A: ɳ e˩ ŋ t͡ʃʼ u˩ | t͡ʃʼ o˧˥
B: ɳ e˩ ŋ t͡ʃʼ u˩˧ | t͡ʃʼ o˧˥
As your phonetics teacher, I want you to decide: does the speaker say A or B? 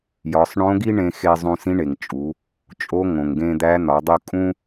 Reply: B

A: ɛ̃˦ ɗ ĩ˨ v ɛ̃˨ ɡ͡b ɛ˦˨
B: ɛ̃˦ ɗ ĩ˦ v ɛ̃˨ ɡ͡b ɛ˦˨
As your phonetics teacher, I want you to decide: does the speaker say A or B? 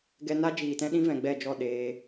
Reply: B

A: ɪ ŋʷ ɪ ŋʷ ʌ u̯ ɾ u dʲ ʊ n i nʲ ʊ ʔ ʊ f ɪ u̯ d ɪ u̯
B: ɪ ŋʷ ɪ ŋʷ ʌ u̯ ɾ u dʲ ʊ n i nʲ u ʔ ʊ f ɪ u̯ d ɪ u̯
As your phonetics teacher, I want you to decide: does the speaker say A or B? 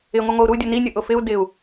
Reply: A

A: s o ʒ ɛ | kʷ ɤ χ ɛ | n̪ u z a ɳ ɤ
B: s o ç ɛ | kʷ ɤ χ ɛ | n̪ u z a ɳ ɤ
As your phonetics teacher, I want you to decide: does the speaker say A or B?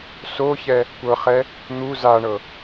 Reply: B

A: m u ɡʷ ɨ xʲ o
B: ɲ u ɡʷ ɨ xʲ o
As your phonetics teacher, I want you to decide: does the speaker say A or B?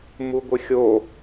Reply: A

